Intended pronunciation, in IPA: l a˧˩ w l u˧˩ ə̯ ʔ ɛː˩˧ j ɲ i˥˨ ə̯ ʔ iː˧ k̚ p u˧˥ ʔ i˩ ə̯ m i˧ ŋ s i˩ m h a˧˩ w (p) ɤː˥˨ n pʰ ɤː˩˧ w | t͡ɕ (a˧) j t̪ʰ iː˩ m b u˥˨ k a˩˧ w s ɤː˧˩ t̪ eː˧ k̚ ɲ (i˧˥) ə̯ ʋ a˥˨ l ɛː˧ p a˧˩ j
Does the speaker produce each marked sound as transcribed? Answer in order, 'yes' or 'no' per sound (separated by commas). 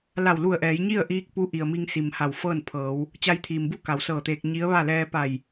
no, yes, yes